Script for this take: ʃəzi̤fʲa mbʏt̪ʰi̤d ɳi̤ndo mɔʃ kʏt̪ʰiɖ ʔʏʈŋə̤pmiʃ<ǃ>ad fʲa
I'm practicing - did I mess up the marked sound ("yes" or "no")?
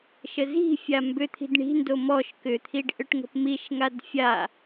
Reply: yes